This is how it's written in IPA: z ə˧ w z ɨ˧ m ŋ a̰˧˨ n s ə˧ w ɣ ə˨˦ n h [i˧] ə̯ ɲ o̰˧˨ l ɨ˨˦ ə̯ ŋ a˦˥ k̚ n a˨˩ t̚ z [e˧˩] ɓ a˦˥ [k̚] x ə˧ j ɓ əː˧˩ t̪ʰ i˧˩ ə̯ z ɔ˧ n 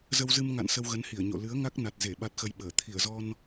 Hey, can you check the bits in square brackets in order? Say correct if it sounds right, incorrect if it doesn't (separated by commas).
incorrect, correct, incorrect